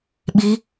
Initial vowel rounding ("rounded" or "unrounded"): unrounded